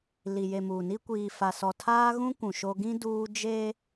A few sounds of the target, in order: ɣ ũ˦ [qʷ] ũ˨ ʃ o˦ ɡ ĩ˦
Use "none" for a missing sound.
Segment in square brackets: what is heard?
kʷ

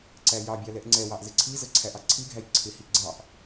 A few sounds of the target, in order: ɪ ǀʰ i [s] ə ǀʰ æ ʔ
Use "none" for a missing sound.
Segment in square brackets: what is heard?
z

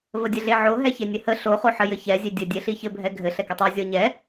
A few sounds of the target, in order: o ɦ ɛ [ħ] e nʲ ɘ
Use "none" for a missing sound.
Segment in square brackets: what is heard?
ç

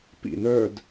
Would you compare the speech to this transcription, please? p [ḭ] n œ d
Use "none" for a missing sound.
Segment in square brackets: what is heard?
ḭ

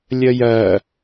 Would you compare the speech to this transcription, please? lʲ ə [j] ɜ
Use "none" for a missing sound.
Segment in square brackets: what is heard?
j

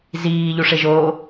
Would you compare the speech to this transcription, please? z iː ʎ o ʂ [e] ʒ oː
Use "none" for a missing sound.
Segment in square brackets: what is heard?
e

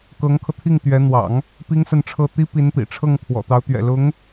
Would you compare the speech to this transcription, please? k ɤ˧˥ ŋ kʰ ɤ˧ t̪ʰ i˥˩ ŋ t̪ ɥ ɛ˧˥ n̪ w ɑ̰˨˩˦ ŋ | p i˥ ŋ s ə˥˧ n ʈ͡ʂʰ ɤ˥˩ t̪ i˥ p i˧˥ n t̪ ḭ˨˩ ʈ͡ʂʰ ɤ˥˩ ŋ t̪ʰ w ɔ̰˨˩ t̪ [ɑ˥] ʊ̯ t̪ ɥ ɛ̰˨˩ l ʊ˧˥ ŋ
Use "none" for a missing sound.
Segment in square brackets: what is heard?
ɑ˧˥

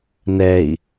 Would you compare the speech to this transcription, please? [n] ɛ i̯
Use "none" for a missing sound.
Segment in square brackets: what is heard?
n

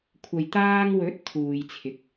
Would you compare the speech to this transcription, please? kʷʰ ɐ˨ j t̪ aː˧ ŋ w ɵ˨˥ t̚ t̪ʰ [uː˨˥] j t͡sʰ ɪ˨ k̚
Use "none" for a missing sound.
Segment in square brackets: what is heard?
uː˨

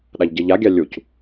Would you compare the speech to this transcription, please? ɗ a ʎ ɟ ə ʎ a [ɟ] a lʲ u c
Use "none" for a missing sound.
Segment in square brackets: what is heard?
ɡʲ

